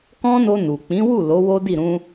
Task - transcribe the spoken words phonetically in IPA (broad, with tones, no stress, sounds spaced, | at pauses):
k ɔ̃˦ n o˧ n u˨ k͡p ĩ˨˦ w u˦˨ l o˨˦ w o˦ d i˦˨ ɾ ũ˧